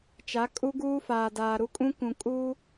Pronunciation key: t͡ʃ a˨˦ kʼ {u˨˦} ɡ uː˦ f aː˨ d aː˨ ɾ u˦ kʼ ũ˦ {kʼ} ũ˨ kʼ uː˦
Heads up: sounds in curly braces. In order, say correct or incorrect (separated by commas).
incorrect, incorrect